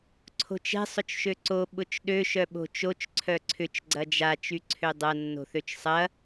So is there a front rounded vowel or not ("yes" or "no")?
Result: yes